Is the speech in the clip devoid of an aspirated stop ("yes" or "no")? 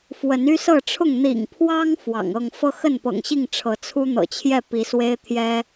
no